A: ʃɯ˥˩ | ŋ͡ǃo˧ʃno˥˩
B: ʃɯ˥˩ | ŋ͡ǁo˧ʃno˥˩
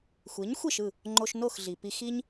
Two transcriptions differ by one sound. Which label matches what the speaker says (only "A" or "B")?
A